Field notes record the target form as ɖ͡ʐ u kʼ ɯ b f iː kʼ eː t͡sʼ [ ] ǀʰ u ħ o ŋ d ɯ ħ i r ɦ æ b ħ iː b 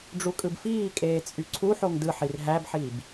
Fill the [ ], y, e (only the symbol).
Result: y